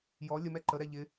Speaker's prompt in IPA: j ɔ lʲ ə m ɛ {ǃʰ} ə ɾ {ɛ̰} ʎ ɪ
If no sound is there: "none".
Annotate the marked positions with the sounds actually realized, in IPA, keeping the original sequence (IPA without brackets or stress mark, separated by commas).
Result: ǃ, ɛ